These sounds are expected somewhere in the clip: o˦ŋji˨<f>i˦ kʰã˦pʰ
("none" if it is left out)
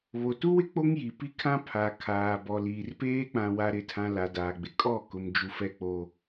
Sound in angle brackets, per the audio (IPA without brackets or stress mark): p